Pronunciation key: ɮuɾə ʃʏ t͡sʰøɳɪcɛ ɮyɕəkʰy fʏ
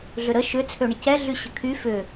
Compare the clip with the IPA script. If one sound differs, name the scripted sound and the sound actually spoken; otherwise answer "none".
u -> ʏ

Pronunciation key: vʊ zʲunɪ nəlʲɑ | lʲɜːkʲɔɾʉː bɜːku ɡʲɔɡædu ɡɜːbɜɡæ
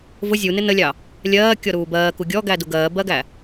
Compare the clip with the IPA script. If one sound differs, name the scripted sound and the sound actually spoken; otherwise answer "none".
ʉː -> uː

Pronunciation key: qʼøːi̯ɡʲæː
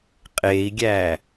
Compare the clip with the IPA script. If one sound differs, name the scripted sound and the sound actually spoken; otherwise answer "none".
øː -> eː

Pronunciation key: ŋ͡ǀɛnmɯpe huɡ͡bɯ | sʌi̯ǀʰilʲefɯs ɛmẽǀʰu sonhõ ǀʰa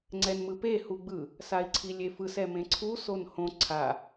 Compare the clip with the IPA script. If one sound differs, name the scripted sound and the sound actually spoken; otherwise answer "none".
ʌ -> a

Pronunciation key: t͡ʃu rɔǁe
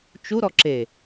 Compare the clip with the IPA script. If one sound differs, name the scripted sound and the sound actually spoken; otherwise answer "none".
r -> ɾ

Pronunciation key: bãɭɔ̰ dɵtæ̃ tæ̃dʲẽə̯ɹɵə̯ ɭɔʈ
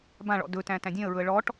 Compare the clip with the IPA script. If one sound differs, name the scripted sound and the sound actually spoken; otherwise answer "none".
none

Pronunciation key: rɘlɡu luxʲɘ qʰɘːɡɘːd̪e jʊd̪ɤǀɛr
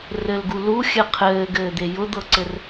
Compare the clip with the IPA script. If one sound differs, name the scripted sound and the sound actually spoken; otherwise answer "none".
ɛ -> ɘ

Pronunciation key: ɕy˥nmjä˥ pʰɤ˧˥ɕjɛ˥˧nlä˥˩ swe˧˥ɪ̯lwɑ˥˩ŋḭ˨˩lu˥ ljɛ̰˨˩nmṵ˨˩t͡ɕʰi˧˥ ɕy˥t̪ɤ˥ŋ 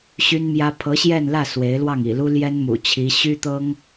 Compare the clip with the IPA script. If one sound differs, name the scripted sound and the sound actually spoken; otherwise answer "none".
ɛ̰˨˩ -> ɛ˥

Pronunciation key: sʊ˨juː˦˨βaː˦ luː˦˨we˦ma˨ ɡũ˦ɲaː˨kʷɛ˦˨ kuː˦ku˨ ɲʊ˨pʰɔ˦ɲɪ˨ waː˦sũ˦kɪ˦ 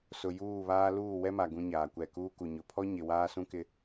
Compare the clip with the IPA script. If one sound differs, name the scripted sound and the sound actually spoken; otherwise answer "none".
e˦ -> ɛ˦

